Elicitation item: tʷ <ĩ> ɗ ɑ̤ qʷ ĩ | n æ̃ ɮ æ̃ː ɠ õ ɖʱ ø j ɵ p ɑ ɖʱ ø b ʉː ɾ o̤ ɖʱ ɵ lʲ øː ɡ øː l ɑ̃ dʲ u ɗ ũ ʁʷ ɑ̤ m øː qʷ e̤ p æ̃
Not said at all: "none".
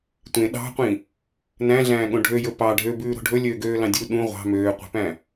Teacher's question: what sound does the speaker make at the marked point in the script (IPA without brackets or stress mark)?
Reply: ẽ